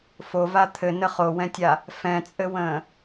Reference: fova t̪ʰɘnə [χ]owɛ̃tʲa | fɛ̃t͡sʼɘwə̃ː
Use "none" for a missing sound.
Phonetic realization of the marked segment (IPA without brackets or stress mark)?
χ